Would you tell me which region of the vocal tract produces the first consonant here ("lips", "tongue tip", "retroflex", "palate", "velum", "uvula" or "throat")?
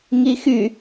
velum